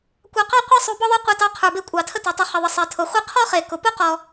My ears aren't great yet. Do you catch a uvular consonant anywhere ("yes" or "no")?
yes